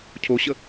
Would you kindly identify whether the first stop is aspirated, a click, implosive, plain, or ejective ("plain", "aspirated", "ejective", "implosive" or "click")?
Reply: aspirated